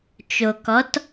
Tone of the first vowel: low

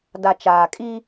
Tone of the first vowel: low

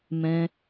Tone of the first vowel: high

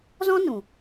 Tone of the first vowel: high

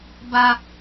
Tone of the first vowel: high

